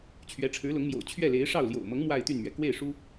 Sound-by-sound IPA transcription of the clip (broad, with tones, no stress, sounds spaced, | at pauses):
t͡ɕʰ ɥ ɛ˧˥ ʈ͡ʂʰ ɻ̩˧˥ l ʊ˧˥ ŋ m j o̰˨˩ ʊ̯ t͡ɕʰ ɥ ɛ˥˩ l e˧˥ ɪ̯ ʂ ɑ˥˩ ʊ̯ l j o̰˨˩ ʊ̯ m ɤ˧˥ ŋ m w a˥˧ ɪ̯ t̪ y˥˩ n m ɥ ɛ˩ k w e˥˩ ɪ̯ ʂ u˥